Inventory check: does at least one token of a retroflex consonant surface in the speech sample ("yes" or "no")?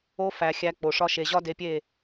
yes